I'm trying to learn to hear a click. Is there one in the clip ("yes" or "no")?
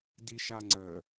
yes